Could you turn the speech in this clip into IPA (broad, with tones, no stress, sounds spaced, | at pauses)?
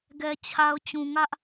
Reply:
ɡ ɛ˨ t͡ɕʰ a˨ ʊ̯ t͡ɕ ũ˨ ŋ ä˦ ʔ